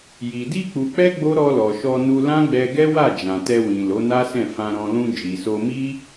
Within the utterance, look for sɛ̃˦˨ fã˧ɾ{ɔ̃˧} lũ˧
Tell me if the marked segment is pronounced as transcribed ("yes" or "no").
yes